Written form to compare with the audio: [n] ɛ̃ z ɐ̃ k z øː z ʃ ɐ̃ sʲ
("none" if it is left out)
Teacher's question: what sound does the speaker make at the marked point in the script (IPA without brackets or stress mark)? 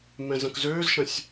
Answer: m